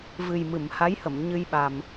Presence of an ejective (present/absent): absent